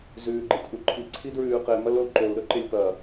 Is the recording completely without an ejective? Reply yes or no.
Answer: yes